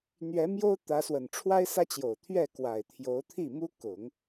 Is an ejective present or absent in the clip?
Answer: absent